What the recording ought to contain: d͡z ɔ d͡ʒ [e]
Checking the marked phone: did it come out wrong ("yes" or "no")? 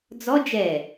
yes